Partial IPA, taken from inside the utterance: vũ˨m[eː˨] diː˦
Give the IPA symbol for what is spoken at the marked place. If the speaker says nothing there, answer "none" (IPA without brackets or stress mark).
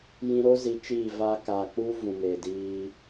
eː˨